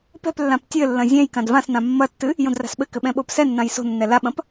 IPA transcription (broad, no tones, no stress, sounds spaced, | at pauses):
p ɛ̤ p lː ã p tʲ ɘ lː ɐ̃ zʲ ɛ̃ j k ã d v ã s n ã mː ɐ tː ɨ | j õ d r a̤ s ɓ ɘ k ɘ ɓ ɛ̃ ɓ o p s ɛ nː ã j s o̤ nː ɛ l a ɓ ɐ̃ p